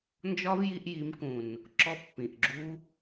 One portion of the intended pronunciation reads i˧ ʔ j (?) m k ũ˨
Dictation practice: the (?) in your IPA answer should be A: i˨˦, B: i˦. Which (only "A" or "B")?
A